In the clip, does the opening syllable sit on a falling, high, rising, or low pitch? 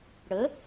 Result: rising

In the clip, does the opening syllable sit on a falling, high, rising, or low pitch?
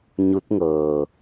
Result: rising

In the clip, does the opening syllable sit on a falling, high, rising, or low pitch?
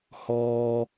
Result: high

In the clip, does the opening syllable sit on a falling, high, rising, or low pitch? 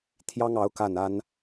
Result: high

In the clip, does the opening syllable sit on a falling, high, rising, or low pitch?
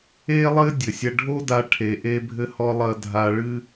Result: high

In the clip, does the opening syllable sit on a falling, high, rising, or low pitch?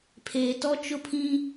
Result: low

